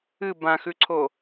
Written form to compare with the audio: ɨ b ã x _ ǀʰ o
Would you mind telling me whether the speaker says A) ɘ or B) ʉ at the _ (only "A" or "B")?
B